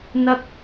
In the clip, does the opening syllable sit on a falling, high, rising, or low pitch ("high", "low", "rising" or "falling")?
high